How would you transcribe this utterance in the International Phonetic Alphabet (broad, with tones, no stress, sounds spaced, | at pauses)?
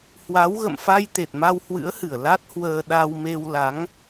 h w a˨˦ w ɣ ə̰˧˨ m f a˧ j t̪ e˨˩ t̚ m a˧ w h w ɨ̰˧˥ ə̯ h ɨ˧˩ ə̯ l a˦˥ t̚ h w əː˧ ɗ a˧ w m e˧ w l a˨˦ ŋ